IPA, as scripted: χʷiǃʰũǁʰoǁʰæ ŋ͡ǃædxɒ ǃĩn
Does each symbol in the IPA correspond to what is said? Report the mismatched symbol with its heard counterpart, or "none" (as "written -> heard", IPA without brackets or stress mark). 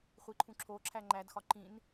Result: none